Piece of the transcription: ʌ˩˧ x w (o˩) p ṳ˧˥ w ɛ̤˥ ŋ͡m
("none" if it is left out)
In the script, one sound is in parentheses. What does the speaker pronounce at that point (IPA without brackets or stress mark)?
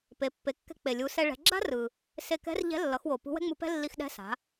o˩